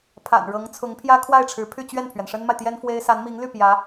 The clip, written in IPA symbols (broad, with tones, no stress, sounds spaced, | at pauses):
pʰ a̰˨˩ n ɻ ɤ˧˥ ŋ t͡sʰ ʊ˧˥ ŋ pʰ j ä˥ kʰ w a˥˩ ɪ̯ ʈ͡ʂʰ ɻ̩˧˥ pʰ y˥˧ t͡ɕ ɥ ɛ˥˩ n pʰ ɥ ɛ˩ n ʂ ə˥ n m a˨ ɪ̯ t̪ j ɛ˥ n f w e˥ ɪ̯ s a˧˥ n m i˧˥ ŋ l y˥˩ p j ä˧˥